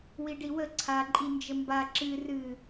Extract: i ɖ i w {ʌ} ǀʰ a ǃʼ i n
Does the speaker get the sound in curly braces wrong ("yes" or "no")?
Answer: yes